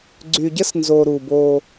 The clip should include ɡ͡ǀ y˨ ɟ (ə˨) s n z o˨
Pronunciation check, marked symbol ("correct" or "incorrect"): incorrect